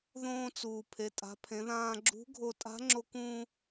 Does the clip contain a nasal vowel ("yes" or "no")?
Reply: yes